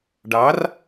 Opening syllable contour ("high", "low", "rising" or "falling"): rising